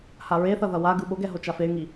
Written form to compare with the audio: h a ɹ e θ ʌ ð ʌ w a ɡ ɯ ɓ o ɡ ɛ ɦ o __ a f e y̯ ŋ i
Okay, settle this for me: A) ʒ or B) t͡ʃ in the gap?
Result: B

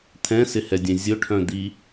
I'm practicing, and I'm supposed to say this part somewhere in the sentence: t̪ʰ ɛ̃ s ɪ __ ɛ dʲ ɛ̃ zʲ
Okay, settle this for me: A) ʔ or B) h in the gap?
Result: B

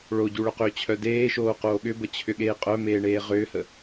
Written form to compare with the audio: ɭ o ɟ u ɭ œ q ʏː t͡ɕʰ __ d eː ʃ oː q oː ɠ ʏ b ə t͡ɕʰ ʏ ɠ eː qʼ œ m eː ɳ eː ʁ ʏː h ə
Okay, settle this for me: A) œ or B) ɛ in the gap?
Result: A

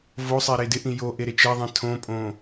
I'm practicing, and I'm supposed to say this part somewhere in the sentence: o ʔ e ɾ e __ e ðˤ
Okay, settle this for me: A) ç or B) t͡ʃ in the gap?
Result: B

